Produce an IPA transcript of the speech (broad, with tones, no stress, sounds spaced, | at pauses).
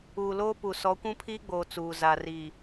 uː˨ l oː˦ p u˨ s ɔ˨˦ kʷ ũ˦ pʰ iː˦ ɡ͡b oː˨ t͡s uː˨ z a˨ r iː˨